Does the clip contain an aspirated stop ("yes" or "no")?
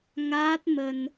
no